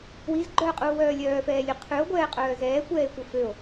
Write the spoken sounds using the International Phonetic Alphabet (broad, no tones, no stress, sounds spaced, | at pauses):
w i z ɡ͡ǃ œː qʼ uː w œː lʲ œː f ɛː lʲ ʉ qʰ ʉ o̯ ɡʷ ɛː qʼ œː z ɛː kʷ ɛː e̯ kʷ œ f ø o̯